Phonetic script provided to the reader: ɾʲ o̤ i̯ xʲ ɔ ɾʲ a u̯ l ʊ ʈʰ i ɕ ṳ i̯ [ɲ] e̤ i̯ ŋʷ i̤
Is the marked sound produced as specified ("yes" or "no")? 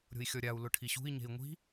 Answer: yes